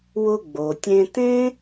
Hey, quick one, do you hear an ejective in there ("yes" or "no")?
no